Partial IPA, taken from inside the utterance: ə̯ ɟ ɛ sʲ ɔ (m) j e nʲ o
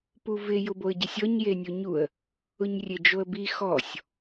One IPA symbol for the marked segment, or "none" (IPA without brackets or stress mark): ɲ